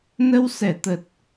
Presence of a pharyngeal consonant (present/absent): absent